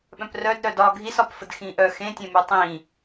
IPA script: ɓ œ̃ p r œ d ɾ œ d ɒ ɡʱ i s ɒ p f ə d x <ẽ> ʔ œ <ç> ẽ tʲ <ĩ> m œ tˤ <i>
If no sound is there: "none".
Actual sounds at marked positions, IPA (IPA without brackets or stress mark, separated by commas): ĩ, x, ẽ, ĩ